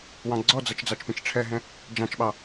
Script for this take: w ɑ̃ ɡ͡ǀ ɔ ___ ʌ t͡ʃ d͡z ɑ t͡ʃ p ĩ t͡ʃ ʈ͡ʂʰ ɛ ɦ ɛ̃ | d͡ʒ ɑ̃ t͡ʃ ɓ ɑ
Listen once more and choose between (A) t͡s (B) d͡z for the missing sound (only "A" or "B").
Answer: B